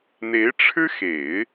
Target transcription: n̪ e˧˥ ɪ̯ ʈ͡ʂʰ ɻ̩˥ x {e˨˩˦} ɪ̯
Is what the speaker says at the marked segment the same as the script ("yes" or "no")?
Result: yes